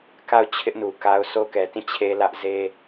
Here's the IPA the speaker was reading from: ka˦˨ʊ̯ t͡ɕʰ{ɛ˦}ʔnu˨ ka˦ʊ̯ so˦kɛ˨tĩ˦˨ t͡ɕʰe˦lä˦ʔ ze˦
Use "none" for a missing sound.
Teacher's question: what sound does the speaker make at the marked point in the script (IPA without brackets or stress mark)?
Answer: ɪ˦